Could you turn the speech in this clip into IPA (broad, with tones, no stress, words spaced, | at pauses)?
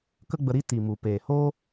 kə˦ɡ͡bə˧ ɾi˦ ti˨mu˨ peː˨ho˦